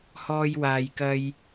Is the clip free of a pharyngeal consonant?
yes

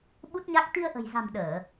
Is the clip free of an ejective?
yes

